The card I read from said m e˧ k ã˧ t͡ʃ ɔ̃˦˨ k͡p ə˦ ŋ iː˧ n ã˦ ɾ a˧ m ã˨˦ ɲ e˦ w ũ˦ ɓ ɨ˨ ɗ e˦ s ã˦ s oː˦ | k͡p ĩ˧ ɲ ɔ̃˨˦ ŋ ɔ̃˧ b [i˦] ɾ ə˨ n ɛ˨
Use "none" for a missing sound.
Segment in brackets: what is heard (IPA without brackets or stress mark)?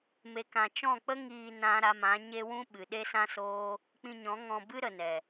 ɨ˦